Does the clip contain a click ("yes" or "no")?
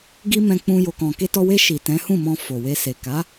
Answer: no